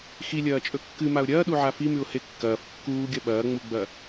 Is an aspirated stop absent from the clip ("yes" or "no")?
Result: yes